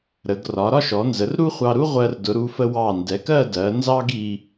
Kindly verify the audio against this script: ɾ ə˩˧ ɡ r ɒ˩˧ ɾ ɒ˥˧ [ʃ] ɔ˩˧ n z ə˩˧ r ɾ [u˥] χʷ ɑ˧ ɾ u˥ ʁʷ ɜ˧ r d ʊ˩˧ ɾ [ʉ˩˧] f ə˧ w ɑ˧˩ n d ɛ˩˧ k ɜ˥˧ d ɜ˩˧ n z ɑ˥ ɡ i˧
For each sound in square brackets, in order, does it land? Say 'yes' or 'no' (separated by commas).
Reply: yes, yes, no